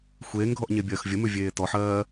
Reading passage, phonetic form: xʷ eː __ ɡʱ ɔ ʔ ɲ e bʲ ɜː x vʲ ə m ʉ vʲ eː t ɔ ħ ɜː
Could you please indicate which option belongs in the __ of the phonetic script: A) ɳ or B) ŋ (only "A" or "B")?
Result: B